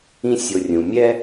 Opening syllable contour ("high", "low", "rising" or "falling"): high